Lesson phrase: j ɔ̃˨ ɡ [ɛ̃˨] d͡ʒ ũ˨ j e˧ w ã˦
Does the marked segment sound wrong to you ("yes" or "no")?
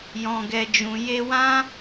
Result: yes